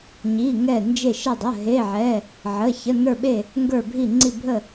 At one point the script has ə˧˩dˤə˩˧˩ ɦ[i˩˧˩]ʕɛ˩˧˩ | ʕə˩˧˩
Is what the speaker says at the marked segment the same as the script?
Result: no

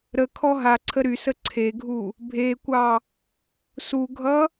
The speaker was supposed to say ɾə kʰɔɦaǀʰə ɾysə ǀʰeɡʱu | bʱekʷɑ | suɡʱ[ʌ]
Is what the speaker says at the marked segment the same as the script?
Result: yes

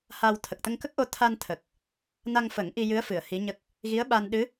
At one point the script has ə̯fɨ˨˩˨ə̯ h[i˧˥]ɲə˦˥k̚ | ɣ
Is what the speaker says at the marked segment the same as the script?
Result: yes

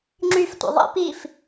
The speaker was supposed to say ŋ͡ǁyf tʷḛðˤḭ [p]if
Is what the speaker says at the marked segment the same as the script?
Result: yes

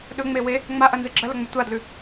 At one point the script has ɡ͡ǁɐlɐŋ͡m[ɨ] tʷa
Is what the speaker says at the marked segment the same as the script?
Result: no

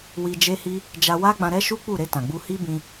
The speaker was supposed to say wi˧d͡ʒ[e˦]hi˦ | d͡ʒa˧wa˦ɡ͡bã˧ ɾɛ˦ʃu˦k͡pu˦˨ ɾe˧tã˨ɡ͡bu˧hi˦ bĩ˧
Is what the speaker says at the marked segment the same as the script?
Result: yes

